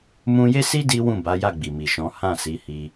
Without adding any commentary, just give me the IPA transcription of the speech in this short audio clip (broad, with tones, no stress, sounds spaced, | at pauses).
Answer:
m ũ˧ j e˦ s i˦ d i˦ w ũ˦˨ b a˨˦ j a˦˨ ɡ͡b i˨ m i˨ ʃ ɔ̃˨˦ h ã˦˨ s i˨˦ h i˧